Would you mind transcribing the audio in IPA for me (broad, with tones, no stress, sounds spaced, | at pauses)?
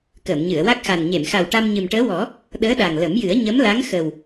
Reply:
k əː˨˩˨ m ɲ ɨ˨˩˨ ə̯ w a˦˥ k̚ x a˨˩ n ɲ e˨˩˨ m x a˨˩ w ʈ a˧ m ɲ ɨ˨˩ m ʈ əː˧˥ w ɔ˨˩˦ | ɗ əː˧˥ ɗ a˨˩ ŋ l ə˨˩˦ m j ɨ˨˩˦ ə̯ ɲ ə˧˥ m l a˧˥ ŋ x ə˨˩ w